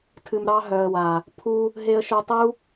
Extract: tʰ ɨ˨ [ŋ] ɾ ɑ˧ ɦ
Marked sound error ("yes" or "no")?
yes